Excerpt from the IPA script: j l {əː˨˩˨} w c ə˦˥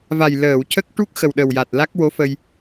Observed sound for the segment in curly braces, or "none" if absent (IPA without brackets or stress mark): əː˨˩˨